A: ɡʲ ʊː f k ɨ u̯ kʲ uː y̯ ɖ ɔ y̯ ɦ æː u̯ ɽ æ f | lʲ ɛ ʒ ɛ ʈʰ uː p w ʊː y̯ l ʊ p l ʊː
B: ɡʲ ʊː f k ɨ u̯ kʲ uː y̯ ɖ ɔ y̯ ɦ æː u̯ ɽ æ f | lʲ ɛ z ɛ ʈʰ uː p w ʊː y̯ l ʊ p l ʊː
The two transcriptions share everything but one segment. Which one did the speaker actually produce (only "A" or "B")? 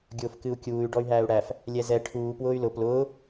B